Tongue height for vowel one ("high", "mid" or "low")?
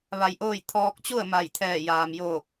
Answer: low